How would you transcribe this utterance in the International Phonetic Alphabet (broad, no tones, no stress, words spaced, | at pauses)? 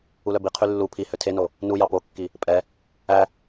ulœbiqʰy lːu pʰi høtʰeno | nujɑ pokːi | pʼɛ | æ